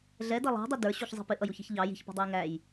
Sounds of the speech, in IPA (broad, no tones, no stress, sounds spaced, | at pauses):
ɮ ɛ d ʌ lˠ ɑ̤ dˤ i d ə˞ ɕ u ç zˤ i̤ p ɪ ʔ ʌ j u ç i̤ ç ʎ ɑ j i̤ ç p ɔ̤ dˤ ʌ j ŋ æ j